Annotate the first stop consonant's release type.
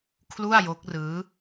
aspirated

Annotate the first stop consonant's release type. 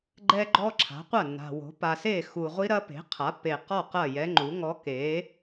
click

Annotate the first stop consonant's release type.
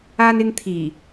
aspirated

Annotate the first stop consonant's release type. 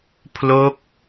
aspirated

